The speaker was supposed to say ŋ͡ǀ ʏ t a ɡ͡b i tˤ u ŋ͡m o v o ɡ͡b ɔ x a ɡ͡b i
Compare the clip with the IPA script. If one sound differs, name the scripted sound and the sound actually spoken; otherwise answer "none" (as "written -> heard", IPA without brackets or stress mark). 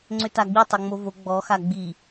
u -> o